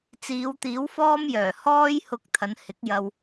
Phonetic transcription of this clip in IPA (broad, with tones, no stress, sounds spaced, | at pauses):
t͡s iː˨˧ w t̪ iː˨˥ w f ɔː˥ m j œː˨˩ h ɔː˥ j h ʊ˧ k̚ t̪ʰ ɐ˨˧ n h ɪ˨˥ k̚ j ɐ˧ w